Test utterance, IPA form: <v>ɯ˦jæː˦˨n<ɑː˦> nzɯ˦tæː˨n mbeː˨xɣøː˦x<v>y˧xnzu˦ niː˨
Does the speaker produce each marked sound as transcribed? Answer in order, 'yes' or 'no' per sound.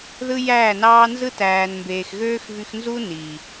no, yes, yes

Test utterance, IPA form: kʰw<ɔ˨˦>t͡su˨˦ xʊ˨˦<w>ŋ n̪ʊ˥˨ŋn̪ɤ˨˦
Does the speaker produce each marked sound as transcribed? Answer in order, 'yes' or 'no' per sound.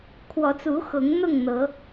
yes, no

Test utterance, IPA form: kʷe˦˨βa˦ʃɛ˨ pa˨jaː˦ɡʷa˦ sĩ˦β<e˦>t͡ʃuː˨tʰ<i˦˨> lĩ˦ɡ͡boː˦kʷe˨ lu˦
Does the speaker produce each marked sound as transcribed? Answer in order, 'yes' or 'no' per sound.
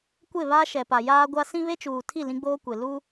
yes, yes

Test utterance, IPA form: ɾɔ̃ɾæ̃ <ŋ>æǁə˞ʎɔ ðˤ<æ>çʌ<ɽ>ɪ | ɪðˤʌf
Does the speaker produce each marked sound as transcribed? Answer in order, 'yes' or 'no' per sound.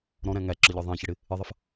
yes, no, yes

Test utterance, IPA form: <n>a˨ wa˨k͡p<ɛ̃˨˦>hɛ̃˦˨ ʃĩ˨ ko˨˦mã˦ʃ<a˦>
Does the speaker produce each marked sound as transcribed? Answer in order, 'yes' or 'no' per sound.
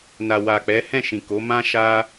yes, no, yes

